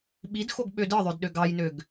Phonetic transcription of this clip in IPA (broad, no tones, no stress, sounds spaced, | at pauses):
ɓ i d x o ɡ ɓ ø d ɯ ðˤ ø d ɗ ø ɡ ɑ j n ø ɡ